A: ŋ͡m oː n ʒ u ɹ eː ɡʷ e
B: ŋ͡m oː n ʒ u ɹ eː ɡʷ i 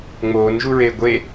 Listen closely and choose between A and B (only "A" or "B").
A